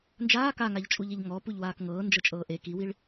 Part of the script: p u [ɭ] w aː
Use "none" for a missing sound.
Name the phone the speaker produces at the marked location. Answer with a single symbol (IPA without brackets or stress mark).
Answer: ʎ